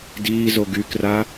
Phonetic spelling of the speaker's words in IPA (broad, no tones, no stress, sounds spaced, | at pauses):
d iː z o ɡ y k r a